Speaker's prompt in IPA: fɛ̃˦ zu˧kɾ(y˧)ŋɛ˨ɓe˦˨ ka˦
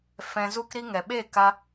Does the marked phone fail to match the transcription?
yes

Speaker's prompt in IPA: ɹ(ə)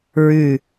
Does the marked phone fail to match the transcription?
yes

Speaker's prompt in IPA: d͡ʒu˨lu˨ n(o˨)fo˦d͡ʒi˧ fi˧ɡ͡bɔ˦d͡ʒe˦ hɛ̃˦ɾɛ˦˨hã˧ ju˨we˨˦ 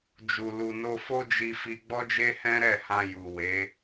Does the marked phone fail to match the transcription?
yes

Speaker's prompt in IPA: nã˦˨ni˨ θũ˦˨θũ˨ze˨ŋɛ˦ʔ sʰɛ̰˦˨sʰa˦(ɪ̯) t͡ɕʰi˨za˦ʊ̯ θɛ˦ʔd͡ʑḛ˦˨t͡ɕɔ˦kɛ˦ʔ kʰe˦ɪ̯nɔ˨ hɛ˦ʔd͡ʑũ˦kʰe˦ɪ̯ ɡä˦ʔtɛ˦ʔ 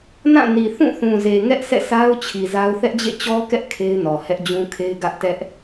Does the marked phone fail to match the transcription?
yes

